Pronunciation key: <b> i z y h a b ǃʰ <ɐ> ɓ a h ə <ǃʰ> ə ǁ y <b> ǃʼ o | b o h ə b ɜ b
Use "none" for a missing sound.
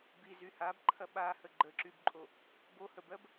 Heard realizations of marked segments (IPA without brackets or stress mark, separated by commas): b, ɐ, ɡ͡ǃ, b